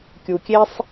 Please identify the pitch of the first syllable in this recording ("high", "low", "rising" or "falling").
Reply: low